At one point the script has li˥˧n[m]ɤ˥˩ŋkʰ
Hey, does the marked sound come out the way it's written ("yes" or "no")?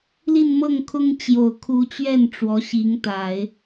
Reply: yes